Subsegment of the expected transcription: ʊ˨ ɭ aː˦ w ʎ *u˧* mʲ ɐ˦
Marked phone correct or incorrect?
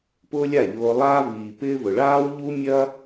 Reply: incorrect